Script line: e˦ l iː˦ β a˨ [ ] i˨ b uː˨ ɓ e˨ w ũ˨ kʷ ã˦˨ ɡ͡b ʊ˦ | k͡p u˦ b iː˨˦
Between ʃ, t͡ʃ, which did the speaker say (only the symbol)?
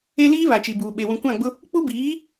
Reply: t͡ʃ